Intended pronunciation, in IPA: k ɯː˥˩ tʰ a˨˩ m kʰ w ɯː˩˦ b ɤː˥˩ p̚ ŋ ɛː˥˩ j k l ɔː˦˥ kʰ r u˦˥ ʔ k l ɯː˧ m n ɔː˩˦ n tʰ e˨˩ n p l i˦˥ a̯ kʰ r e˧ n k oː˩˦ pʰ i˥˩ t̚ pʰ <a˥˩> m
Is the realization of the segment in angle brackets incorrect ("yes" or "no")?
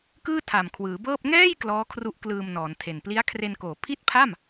no